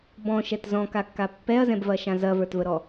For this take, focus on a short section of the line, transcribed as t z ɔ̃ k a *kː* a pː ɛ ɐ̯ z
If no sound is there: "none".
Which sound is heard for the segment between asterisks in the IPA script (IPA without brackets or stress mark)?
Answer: kː